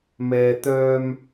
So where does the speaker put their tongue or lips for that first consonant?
lips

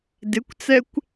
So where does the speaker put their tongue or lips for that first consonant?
tongue tip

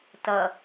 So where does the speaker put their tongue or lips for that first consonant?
tongue tip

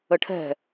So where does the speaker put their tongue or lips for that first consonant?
retroflex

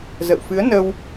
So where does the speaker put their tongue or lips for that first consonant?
tongue tip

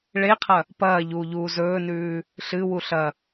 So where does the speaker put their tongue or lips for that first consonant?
retroflex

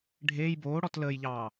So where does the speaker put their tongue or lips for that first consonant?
retroflex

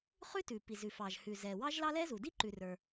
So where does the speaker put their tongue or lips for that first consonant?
uvula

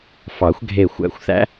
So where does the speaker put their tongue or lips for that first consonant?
lips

